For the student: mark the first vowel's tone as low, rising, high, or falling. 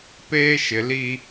high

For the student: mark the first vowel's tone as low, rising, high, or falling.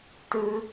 high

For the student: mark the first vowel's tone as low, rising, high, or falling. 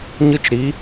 high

